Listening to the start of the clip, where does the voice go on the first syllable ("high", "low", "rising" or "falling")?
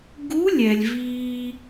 rising